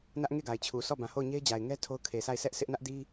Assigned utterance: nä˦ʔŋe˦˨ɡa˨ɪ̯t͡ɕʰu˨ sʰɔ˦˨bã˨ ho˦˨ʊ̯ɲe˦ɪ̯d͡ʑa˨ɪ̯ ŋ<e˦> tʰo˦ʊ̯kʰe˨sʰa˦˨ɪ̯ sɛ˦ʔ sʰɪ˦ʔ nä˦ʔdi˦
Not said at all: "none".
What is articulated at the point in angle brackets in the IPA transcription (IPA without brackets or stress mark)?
ɛ˦